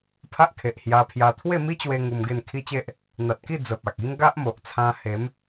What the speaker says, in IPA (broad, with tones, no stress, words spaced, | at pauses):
pʰa˦ʔkʰe˨ʔhja˧pʰja˧ t̪ʰwe˥˧mi˦t͡ɕwe˧ ŋu˧mɡe˥˧nkʰi˦t͡ɕe˦ʔ | n̪a˨t̚ki˥˧ d͡zə˨p̚a˨k̚i˦ŋ ɡa˦ʔmo˨ʔt͡sʰã˧he˨˦m